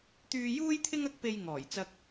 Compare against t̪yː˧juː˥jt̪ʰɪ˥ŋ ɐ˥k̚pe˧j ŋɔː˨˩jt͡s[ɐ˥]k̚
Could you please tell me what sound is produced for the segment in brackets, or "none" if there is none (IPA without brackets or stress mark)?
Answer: ɐ˧